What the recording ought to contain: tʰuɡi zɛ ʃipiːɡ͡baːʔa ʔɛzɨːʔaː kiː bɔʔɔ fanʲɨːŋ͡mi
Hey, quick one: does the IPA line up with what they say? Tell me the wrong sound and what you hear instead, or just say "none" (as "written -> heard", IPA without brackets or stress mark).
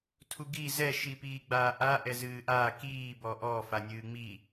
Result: none